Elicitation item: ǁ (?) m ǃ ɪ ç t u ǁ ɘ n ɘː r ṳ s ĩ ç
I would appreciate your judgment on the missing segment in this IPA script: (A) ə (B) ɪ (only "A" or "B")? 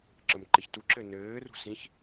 A